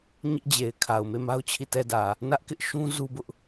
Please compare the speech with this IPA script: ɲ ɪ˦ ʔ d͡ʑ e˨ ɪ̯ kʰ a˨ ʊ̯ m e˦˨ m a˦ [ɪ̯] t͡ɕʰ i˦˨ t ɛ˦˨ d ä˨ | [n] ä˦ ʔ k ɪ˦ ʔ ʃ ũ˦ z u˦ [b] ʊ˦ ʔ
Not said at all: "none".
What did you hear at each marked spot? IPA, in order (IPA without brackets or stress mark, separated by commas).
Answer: ʊ̯, n, b